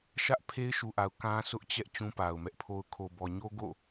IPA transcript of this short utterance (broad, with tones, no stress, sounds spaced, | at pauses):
ʃ ä˦ ʔ pʰ e˦ ɪ̯ ʃ u˨ ʔ a˨ ʊ̯ k ã˦ sʰ ʊ˦ ʔ t͡ɕ ɛ˦ ʔ t͡ɕ ũ˦ p a˨ ʊ̯ m ɛ˦ ʔ pʰ o˦ ʊ̯ kʰ o˨ b ɔ˨ ɲ o˦ ɡ o̰˦˨